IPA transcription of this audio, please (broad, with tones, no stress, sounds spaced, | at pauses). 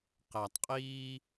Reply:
q æ˨ tˤ qʼ iː˦